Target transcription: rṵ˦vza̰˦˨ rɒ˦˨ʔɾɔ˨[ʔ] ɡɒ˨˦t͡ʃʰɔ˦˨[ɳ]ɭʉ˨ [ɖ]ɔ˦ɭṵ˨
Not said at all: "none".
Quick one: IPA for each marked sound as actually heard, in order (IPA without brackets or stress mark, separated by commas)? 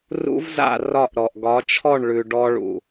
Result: ʔ, ɳ, ɖ